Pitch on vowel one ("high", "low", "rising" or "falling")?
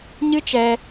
high